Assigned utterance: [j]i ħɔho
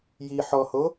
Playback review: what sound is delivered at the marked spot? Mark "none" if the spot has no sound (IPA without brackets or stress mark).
j